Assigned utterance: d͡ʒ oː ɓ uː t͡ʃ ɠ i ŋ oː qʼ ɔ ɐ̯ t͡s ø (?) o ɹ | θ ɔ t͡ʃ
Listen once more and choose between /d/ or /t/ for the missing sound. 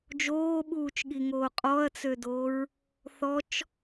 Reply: d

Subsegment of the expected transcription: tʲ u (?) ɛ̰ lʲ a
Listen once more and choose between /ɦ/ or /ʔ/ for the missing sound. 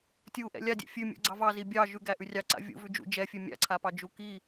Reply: ʔ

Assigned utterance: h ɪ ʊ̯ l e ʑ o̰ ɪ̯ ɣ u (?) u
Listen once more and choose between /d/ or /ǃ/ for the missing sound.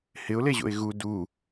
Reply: d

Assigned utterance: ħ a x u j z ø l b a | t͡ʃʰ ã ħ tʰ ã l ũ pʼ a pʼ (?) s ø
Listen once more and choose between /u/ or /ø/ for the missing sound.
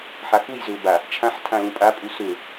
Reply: u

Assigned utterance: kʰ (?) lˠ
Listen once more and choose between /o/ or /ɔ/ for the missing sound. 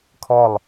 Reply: ɔ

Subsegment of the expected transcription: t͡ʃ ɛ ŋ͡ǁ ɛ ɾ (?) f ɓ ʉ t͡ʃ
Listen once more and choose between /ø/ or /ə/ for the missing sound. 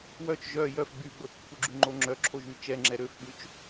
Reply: ø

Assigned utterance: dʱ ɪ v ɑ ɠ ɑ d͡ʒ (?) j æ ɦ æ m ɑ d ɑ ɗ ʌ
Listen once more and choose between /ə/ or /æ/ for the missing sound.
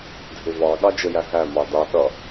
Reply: ə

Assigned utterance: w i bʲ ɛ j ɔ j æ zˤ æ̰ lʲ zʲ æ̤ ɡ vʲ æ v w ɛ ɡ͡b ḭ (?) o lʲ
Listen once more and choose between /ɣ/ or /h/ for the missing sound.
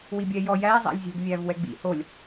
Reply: h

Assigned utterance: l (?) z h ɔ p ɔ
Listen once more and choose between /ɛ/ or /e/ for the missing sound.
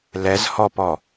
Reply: ɛ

